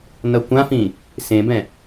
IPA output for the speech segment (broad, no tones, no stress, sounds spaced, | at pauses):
n ʌ kʷ ã f ĩ | s ẽ b ɛ̃